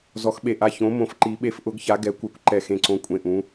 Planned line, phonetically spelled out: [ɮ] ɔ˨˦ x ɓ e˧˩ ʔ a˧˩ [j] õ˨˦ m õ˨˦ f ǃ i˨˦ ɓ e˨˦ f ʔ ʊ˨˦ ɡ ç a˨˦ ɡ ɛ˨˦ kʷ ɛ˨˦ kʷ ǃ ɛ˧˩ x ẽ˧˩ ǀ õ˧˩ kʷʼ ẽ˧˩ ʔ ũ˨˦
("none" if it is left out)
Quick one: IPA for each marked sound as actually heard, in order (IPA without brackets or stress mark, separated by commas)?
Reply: z, ç